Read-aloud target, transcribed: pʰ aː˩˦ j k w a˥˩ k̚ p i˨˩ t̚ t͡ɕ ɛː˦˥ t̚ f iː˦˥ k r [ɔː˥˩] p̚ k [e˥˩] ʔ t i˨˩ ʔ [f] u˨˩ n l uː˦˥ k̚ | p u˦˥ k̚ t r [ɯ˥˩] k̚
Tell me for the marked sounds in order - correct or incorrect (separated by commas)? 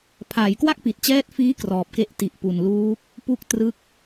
incorrect, correct, incorrect, correct